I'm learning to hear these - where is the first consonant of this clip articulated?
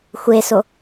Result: velum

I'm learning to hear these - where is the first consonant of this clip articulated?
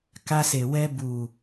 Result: velum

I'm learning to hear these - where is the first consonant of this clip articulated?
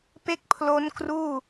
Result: lips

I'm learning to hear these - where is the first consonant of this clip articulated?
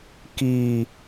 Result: velum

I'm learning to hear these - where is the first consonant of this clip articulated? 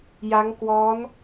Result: palate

